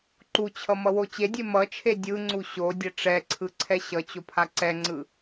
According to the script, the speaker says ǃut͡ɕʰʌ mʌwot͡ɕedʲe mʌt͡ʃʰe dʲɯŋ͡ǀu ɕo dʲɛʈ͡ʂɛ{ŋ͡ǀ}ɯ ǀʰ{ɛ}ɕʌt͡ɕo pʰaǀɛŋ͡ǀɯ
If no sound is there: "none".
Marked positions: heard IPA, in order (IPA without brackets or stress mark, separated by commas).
ǀʰ, ɛ